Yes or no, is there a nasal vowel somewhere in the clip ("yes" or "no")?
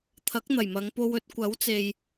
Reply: no